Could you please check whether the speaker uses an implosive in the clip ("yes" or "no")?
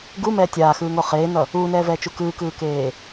no